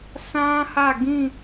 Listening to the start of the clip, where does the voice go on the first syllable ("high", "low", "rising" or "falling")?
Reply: high